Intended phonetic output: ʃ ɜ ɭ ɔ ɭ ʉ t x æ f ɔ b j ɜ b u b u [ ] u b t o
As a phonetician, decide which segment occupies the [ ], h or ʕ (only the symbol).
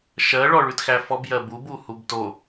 h